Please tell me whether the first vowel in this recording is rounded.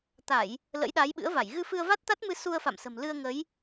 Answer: no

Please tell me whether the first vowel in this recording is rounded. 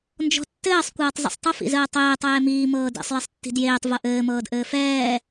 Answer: yes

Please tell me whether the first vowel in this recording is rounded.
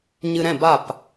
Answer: no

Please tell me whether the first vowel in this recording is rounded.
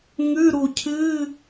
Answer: yes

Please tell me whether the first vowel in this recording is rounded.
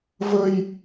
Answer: no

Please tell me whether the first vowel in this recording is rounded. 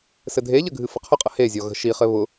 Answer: no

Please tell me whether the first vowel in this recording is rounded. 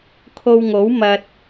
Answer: yes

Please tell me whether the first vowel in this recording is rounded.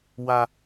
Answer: no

